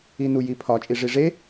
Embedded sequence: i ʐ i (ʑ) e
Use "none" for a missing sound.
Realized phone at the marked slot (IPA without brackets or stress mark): ʐ